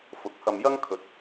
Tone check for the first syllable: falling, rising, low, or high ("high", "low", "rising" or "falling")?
rising